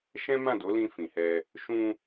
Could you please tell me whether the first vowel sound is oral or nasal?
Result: nasal